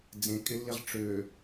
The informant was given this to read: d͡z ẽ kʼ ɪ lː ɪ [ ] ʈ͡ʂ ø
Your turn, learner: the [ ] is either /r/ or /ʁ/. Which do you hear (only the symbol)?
ʁ